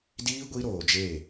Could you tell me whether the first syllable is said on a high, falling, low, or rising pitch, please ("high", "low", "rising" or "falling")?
high